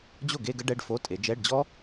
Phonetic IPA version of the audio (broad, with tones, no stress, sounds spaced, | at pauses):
d͡ʑ o˥˩ ɡ e˥˧ ɡ ə˥ ɖ ɛ˧˥˧ ɖ f o˧˥˧ tʼ e˨˦ d͡ʒ ɛ˧˥˧ ɖ d͡ʑ ɔ˥